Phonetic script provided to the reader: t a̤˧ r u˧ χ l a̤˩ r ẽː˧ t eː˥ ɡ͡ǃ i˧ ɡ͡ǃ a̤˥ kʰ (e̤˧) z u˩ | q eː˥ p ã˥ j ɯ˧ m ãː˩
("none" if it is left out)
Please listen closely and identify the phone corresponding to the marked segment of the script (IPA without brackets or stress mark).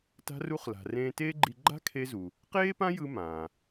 e˧